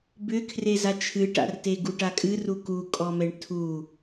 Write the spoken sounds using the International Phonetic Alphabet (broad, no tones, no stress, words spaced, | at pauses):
bʏkʰreza t͡ʃʰɨʈa̰rte ɡuʈakʼɨru kukʼɔmɛɳ tʰu